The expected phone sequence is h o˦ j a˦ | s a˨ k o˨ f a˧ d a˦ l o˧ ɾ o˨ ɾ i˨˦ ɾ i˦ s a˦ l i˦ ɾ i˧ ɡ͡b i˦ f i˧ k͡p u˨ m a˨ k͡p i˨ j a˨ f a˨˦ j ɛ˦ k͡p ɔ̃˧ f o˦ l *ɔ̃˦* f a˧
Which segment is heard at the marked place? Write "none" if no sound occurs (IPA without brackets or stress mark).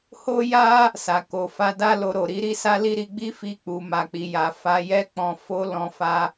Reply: ɔ̃˧